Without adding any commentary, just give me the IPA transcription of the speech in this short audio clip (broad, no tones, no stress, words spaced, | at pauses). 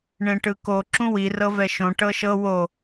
ɳẽʈɯko ǁũwi rɤvɛʃõ ʈɤʃɤ wo